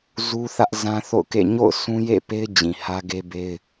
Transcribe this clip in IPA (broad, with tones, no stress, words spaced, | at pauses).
zu˦θä˦ʔ zã˦θo̰˦˨ʊ̯kḛ˦˨ ɲo̰˦˨ʊ̯ sũ˦jḛ˦˨pe˦ɪ̯d͡ʑĩ˨ hä˦ ɡe˦be˦ɪ̯